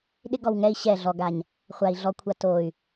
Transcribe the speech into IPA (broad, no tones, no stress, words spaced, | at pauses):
ɗɪ ɡɔwŋɛi̯ ɕɛ ɮɔɡaɲ | χʷai̯ ɮɔkʷʰa toy̯